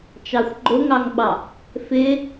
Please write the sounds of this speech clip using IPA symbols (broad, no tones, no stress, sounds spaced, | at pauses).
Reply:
t͡ʃ ɑ xʷ ɡ͡ǃ ʊ ŋ ɑ ŋ ɓ ɑ | f ɪ